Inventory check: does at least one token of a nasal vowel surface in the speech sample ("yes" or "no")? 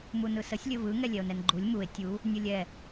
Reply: no